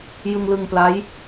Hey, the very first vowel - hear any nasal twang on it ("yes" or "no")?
no